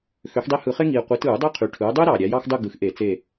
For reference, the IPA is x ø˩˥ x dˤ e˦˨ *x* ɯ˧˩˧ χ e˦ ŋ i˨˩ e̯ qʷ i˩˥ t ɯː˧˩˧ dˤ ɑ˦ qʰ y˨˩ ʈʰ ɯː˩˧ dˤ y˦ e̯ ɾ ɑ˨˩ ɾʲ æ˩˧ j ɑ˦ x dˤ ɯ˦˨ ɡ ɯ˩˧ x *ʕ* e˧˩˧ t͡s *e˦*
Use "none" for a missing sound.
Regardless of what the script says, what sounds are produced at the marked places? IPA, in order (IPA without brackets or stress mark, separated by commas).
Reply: h, ʔ, e˦˨